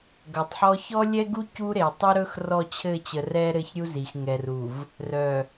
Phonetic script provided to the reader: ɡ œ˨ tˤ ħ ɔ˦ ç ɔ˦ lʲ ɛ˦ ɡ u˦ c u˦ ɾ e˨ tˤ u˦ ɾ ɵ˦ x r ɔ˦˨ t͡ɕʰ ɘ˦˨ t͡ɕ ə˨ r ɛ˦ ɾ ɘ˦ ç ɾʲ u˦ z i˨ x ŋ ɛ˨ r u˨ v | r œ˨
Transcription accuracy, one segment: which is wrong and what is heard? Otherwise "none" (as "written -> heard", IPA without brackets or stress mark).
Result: none